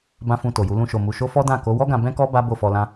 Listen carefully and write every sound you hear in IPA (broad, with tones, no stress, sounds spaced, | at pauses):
b ã˦ f ũ˧ t o˨ j u˨˦ l ũ˧ ʃ o˨ m u˨ ʃ o˧ f ɔ˦ d ã˦˨ k o˨˦ w ɔ˦ ɡ ã˧ b ɛ̃˦ k ɔ˦ b a˦ b o˦˨ f ɔ˧ l ã˦